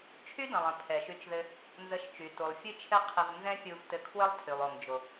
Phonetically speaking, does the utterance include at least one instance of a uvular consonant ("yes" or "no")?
yes